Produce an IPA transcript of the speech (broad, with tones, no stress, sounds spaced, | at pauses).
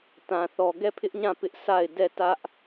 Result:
t ã˨ θ ɔ˨ ɡ ɛ˦˨ pʰ ɪ˦ ʔ ɲ ã˦˨ p ɪ˦ ʔ s a˦˨ ɪ̯ d ɛ˦˨ t ä˦ ʔ